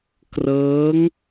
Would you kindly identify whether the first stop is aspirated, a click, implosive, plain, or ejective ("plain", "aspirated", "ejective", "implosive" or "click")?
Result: plain